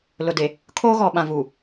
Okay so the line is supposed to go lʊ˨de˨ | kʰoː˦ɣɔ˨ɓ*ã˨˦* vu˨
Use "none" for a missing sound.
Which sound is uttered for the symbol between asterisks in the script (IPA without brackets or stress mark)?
ã˨